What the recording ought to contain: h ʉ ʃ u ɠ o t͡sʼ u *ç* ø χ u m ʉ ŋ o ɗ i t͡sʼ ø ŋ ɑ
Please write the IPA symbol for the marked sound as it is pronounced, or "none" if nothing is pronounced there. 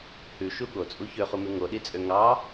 ç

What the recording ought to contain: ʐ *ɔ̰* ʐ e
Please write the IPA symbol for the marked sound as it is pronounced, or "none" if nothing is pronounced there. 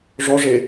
ɔ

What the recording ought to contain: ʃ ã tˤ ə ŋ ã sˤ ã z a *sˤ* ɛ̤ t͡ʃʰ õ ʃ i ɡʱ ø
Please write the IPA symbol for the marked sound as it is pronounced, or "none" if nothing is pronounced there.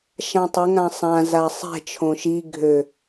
sˤ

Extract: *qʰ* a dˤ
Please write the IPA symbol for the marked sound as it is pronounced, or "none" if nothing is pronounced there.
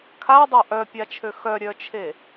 kʰ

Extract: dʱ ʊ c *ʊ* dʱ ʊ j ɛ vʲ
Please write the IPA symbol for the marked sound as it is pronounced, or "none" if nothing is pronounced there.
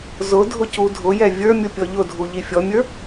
u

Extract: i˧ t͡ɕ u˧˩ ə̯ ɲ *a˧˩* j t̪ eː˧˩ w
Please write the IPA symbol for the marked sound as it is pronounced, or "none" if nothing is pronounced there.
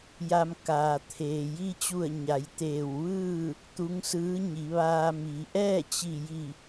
a˩˧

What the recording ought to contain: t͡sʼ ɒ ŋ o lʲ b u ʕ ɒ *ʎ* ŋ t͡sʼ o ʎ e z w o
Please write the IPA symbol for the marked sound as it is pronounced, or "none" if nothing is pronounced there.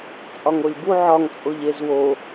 none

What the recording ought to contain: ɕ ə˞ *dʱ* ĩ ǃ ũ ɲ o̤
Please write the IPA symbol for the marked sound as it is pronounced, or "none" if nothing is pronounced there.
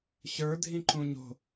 dʱ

